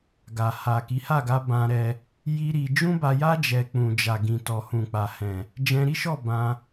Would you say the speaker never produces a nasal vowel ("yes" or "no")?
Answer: no